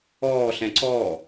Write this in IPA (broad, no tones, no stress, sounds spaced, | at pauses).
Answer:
ɔː ɬ ɛ̃ ǀ ɔː